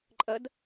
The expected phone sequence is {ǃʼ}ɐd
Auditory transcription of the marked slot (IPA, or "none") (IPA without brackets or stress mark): ǃʼ